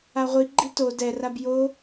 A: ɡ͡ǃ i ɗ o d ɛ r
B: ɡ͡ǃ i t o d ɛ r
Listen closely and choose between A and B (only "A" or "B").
B